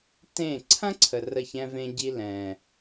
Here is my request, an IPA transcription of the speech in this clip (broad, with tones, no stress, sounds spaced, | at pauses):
t ẽ˦˨ ǀʰ ɐ̃˦ ǀʰ ə˧ r ə˦˨ ç ɛ̃˦ v ẽ˦ ɟ i˦ l ɛ̃˨